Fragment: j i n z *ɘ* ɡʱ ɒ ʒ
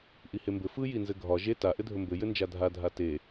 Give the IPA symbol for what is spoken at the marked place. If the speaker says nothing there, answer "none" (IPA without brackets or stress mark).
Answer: ɘ